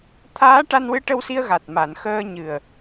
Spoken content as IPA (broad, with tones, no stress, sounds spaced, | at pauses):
t̪ʰ aː˧˥ ʈ a˧ n w ɨ˧˥ ʈ ə˧ w s i˧ ə̯ ɣ a˨˩ t̚ m a˨˩˨ n x əː˧ ɲ ɨ˨˩ ə̯